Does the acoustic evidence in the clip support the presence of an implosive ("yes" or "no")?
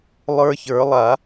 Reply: no